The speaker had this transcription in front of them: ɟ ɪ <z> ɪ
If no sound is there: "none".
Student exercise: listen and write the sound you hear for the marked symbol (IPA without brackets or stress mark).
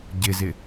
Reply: z